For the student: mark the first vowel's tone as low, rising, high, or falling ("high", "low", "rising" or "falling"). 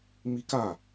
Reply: high